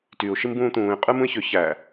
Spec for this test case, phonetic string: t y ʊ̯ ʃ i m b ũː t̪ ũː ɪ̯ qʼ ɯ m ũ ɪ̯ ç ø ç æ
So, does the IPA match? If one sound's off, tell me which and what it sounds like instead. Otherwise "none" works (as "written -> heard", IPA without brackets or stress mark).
none